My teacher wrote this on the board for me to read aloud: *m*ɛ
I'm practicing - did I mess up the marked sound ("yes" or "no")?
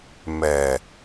no